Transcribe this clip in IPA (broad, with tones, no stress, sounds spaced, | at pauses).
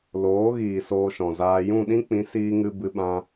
l oː˨˦ ɣ iː˨ s oː˧ ʃ ɔ̃˨ z aː˧ j ũ˦˨ ɗ ĩ˦ k͡p ĩ˨˦ s iː˧ ŋ ɨ˧ b ɨ˧ ɓ ã˧